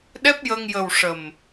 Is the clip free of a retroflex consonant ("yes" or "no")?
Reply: no